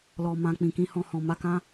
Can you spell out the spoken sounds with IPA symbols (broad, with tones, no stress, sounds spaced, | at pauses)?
l ɔ˨ m ã˨ k͡p ĩ˨ k ĩ˧ h ɔ̃˧ h ɔ̃˨ m a˧ k ã˦